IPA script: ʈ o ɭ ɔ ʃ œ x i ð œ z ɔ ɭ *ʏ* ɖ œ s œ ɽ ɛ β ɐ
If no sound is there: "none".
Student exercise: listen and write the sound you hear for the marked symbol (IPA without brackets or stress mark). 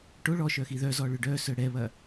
ʏ